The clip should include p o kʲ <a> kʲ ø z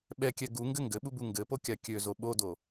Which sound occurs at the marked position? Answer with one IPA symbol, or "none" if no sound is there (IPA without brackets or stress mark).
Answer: a